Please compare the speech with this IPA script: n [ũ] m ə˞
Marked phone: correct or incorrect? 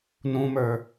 correct